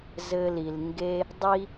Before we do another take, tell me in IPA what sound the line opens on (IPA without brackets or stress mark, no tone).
z